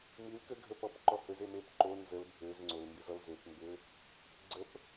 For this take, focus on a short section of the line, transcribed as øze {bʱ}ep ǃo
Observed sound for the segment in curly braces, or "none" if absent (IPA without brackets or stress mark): m